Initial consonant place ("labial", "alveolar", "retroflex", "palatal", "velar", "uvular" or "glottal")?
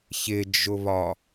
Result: palatal